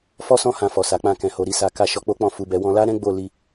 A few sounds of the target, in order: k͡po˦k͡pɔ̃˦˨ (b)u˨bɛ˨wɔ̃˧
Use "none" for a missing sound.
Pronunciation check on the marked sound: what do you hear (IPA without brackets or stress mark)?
f